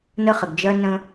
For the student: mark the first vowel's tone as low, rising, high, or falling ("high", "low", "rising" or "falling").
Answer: high